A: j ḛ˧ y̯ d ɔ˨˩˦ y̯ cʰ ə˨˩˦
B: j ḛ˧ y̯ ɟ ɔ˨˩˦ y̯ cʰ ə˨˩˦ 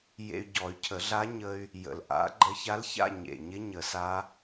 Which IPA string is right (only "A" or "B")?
B